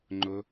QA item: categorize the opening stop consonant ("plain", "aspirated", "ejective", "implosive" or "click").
click